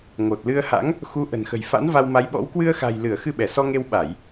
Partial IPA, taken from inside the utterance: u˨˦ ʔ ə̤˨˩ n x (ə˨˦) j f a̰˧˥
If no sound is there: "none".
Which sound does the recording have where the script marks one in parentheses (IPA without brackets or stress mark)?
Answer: ə̤˨˩